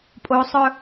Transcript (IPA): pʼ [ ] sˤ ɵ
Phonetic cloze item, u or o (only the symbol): o